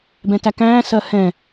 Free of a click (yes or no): yes